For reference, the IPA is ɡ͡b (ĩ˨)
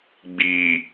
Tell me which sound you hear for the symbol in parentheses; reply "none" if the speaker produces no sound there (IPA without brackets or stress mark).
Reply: i˨